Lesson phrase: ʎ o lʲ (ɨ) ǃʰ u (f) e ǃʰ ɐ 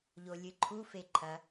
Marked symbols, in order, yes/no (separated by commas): yes, yes